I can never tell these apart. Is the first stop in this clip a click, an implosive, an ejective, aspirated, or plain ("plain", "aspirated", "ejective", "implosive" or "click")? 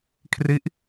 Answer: aspirated